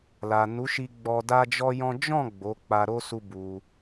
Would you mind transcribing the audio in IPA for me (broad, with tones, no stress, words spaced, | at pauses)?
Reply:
la˨nu˨˦ʃi˧ ɡ͡bɔ˧ da˦d͡ʒɔ˦jɔ̃˦ d͡ʒɔ̃˦˨ ɡ͡bo˨˦k͡pa˧ɾo˦ su˦bu˧